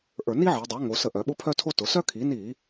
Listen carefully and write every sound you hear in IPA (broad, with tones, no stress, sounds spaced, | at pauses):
ʔ ə˞˧˩˧ n i˥ ʕ i˩˧ dˤ œ˩˥ ŋ o˩˧ s ə˧˩˧ ʔ œ˩˧ ɓ ʊ˥ pʰ œ˥ tʰ o˥ t ʊ˩˧ s œ˥ kʰ i˩˥ n i˧˩˧